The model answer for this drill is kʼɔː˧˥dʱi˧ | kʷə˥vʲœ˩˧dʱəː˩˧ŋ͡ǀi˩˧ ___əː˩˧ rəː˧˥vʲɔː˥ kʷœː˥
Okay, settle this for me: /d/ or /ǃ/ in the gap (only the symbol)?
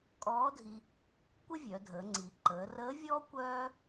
ǃ